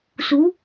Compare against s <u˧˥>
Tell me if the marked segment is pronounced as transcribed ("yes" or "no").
no